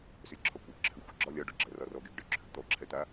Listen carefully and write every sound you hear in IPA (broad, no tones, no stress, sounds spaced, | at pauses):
s ʏ lʲ ǁʰ ɒ kʷʼ ɛ ǁʰ ʏ xʷ ɜ ɡ͡ǁ ɒ lʲ ɒ ɖ ɔ ɡ͡ǁ ɜ r ɒ r ɔ ɡ e ɡ ɖ ʏ ǁʰ ʏ ɡ t̪ ɔ ǁʰ ɛ t̪ a